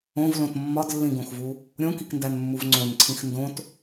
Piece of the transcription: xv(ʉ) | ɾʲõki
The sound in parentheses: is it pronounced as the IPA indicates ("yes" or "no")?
no